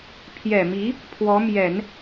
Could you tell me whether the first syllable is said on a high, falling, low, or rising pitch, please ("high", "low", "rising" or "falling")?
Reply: low